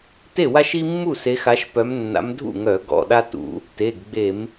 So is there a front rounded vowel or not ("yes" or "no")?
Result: yes